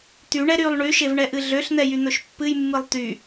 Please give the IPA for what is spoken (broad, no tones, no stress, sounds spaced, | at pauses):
t̪ y ɳ ɛ ɾ y lˠ ɳ y ʃ e v ɳ ɛ ʔ ɨ ɮ ø ɬ n̪ ɛ j y n̪ ɵ ʃ pː ɨ j mː ɨ lˠ t̪ y